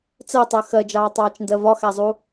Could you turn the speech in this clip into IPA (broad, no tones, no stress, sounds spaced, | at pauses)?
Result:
t͡s ɜ tˤ ɜ x ɜ d͡ʒ ɑː tˤ ɑː t͡ʃ n d ɜ v ɒ x æ zˤ u